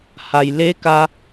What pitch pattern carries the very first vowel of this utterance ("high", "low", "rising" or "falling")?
low